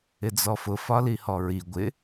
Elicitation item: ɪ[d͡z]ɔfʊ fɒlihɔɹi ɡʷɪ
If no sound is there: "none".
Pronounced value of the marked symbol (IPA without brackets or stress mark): d͡z